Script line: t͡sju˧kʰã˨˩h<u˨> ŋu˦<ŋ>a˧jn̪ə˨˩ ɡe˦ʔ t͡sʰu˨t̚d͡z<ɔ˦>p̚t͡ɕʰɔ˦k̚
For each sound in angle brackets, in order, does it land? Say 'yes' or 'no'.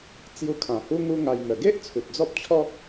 no, yes, yes

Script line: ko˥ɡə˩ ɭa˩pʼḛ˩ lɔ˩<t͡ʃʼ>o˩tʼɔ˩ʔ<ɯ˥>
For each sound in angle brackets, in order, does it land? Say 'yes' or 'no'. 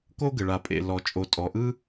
yes, yes

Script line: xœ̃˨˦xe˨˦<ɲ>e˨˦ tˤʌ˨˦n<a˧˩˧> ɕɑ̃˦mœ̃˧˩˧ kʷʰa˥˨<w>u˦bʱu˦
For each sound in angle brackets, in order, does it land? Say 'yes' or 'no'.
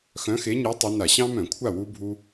yes, yes, yes

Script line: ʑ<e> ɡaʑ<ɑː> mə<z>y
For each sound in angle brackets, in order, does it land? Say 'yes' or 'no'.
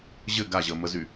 no, no, yes

